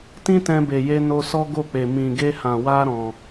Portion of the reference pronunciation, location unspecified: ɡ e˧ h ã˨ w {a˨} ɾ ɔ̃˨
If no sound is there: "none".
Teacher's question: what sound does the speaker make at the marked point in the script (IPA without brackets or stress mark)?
a˧